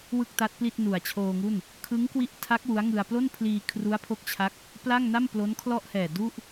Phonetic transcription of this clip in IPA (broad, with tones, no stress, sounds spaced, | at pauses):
w ɯ˥˩ k̚ t a˦˥ t̚ p l i˥˩ t̚ n u˨˩ a̯ t͡ɕʰ oː˧ ŋ u˥˩ n | kʰ ɯ˦˥ ŋ k w i˦˥ ʔ tʰ a˦˥ k̚ w u˦˥ a̯ ŋ ɯ˧ a̯ p l o˥˩ n pʰ l iː˧ kʰ r u˦˥ a̯ pʰ o˦˥ k̚ t͡ɕʰ a˦˥ k̚ | p l a˥˩ ŋ n a˥˩ m p l o˦˥ n kʰ l ɔ˥˩ ʔ h ɛː˨˩ d u˥˩ ʔ